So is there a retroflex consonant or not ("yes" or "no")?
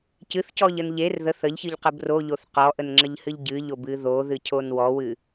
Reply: no